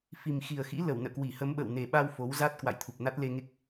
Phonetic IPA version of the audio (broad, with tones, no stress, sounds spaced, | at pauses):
f i˨˩ m x i˨˩ ə̯ x ḭ˧˥ l ə˧˩ w n ə̰ː˧˨ k w i˧˩ h ə˨˦ m ɓ ə̰ː˧˨ w n e˨˩ ɓ a˧ w f o˨˦ w z a˦˥ t̚ k w a̰˧˨ j t̪ʰ u˨˩ p̚ n a˦˥ t̚ l e˧ ŋ e˦˥ k̚